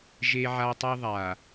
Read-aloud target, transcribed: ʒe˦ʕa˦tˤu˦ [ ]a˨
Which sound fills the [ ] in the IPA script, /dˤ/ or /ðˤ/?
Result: ðˤ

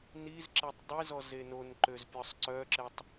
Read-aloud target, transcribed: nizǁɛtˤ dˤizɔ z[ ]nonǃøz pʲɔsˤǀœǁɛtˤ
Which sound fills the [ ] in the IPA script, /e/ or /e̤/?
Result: e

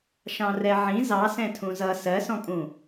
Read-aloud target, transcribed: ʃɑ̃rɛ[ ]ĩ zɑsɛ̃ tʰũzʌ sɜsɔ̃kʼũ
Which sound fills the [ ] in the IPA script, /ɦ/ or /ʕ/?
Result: ʕ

